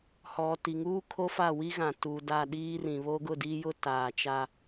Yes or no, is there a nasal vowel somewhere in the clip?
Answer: yes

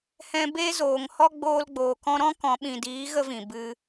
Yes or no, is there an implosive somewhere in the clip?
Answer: yes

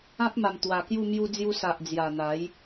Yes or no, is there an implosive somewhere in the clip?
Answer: no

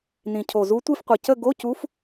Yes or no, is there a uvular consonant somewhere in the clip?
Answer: yes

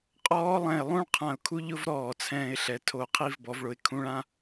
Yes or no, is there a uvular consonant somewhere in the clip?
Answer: yes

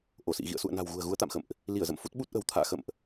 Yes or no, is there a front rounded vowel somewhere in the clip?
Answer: no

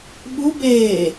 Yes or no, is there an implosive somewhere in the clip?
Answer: yes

